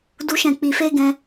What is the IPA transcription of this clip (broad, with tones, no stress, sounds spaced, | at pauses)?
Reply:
d u˦ ʃ ɛ̃˦˨ k͡p i˧ f e˦ ɡ ɛ̃˧